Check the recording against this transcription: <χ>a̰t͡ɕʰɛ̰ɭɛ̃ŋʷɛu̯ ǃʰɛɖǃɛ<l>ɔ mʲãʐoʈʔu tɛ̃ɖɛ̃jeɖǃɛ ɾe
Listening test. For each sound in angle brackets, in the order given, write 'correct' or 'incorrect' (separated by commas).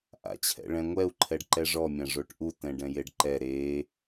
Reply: incorrect, incorrect